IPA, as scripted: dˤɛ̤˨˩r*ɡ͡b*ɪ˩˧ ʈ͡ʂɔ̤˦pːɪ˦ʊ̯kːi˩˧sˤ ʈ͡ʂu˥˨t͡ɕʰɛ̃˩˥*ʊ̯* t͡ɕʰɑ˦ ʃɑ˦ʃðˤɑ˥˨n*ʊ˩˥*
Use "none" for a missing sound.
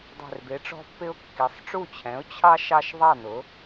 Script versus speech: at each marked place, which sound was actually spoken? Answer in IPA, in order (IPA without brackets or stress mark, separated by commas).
b, ʊ̯, ʊ˩˥